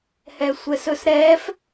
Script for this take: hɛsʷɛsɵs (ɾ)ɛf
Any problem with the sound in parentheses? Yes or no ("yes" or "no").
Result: no